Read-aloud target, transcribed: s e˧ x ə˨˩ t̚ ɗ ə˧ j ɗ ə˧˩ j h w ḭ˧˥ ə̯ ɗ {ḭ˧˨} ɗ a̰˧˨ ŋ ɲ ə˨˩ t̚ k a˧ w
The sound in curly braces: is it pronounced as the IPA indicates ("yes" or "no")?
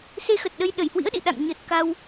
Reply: yes